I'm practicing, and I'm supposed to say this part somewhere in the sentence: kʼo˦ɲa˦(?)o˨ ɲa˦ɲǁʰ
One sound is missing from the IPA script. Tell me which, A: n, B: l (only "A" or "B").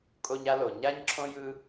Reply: B